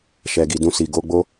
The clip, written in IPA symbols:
ʃ ɛ˨ ɡ i˨ d ũ˧ s i˨ ɡ o˧ ɡ͡b o˦

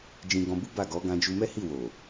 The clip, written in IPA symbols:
d͡ʒ ĩ˧ ɡ ɔ̃˧ b u˦ b a˦˨ ɡ ɔ˨˦ ɡ ã˧ d͡ʒ u˧ m ɛ˦ h i˦˨ w o˨

